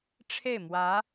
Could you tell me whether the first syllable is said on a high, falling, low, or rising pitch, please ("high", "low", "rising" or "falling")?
falling